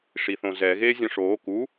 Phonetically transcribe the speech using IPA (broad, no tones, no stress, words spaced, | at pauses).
ʂiθõzɛ ɣeːzʲɔ̃ʂoː ku